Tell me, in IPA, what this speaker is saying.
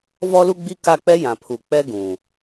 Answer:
vɔ˦lu˦ɡ͡bi˦ ka˦˨k͡pɛ˦jã˨pʰu˨ k͡pɛ˦ɡũ˨

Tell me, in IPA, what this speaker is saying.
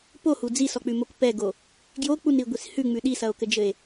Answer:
pohu d͡zisɔk͡pʉmok pɛɡo | ɡjok͡punɾiɡʷis hʉŋ͡mʉ ɗisɐo̯kɘd͡ʒɘe̯

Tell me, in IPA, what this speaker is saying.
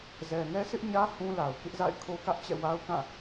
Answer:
zɛ˨ŋɛ˦ sʰɪ˦ʔɲä˦ hũ˦la˨ʊ̯kɪ˦ʔ za̰˦˨ɪ̯kʰo˦kä˦ʔt͡ɕɛ̰˦˨ wa˦ʊ̯kã˦˨

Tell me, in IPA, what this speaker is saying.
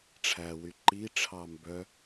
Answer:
ʈ͡ʂʰæwy ǃi ʈ͡ʂʰɑmbœ

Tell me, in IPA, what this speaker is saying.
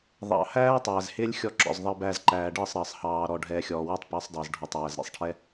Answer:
ðˤɑ̰˨hæː˦ tˤæː˨zhɪː˦lʲxʲɔ˧ ǁɔ̰˨zðˤəː˧bæː˧z ǃæː˨ɖəː˦˨sˤ ɾəː˨sˤ hɑː˨ ɾɔ˧ɖʱɛː˧ xʲɔː˨wɔ˦tˤpəː˨˦sˤdˤəː˨z ɖʱɔ˨tˤjæ˨zɾʲɛ̰˨sˤʈʰɛ˦

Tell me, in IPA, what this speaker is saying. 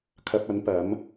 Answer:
kʰɐ˧p̚ɐ˨˥n pɐ˨˥m

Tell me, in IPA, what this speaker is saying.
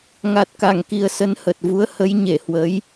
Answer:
ŋa˨˩t̚ka˧˩ŋki˨˩ə̯ sə˨˦nhə˨˩t̚vu˨˦ə̯ hə˨˦jɲe˧˩hwə˨˦j

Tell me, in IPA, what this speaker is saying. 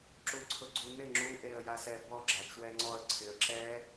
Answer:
ǁuǀʰʊɡ͡ǀunɪ ŋ͡ǁu ʔeə̯jasɛbɔ ɡ͡ǁat͡ʃwɛŋ͡ǀɔə̯ ǀʰɪə̯ǁɛ

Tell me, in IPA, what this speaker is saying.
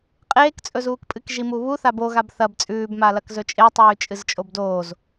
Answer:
qʼeːkt͡sʼɵzuːkpʼɨk ʒimuβuθab oɣab θɐb t͡sʼʉːbmalɐk zɵt͡ʃʼetˤʉː t͡ʃʼɨzt͡ʃʼobdoːz

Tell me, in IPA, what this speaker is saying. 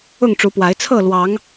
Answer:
ʊ˥˨ŋʈ͡ʂu˨˦pwa˨˦ɪ̯ t͡sʰɤ˥˨lwɑ˨˦ŋ

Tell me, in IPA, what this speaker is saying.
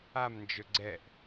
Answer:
amnd͡ʒɵ ɡ͡ǀɛʔ

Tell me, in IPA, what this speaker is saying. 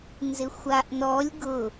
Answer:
nzɪxʷaʔnɔlʲ ɡʊ

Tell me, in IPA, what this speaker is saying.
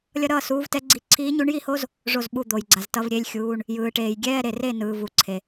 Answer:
lʲʌ˥ ɾʌː˥˨suː˧˥vtɛ˧˥ɡ͡ǀi˧˥ ǀʰiː˧˥ɲu˧˥ɳji˥˨ho˥z | ʐo˥˨zɓu˥˨ d̪o˨jɡ͡ǀa˨ztʌ˧˥˧vɾʲe˧˥˧lʲ xʲuː˧˥˧ɳ | jɯː˨ʈeː˨j ɡʲɛː˧˥˧ɾe˨re˥˨ nɯː˨vu˨ǀʰe˨

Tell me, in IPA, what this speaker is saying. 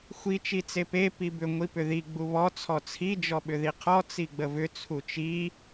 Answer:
xʷi t͡ʃit͡sepe pibʏ ŋʷipʏði ɡ͡buβɔ t͡sʰɔt͡sʰi d͡ʒɔɓʏðiqʰɔ t͡siɡ͡bəvʏ t͡sʰut͡ʃi

